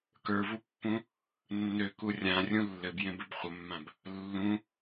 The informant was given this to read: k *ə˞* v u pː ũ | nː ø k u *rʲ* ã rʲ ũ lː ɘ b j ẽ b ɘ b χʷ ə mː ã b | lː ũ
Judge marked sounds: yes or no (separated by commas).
yes, yes